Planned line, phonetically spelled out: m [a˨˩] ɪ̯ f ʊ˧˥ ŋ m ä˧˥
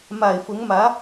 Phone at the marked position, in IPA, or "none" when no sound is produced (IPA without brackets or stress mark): a˨˩